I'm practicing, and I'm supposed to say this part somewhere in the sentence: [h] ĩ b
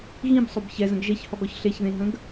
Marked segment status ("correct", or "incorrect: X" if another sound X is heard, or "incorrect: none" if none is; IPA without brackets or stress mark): incorrect: ɣ